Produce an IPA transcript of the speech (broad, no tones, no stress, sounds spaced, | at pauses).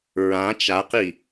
ɹ ã t͡ʃ a q i